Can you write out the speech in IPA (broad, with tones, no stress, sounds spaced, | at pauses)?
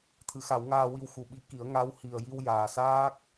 t̪ʰ ɨ˨˩˦ x a˨˩˦ w ŋ aː˧ w i˧ w x u˨˩ ɓ i˧˥ k i˨˩˦ ə̯ ŋ a˧˥ w h i˨˩ ə̯ j i˧ w j aː˨˩ s aː˦˥ k̚